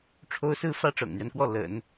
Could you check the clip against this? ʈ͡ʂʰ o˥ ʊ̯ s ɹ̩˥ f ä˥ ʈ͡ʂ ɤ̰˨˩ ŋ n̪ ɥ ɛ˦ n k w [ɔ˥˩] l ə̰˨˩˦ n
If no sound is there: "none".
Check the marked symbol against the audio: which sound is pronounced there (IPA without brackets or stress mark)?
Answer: ɔ˥˩